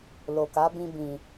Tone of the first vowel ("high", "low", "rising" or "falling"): low